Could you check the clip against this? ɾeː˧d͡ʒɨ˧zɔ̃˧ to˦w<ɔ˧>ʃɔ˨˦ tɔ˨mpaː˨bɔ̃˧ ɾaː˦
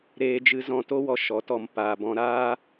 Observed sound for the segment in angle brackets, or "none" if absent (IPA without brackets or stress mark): ɔ˧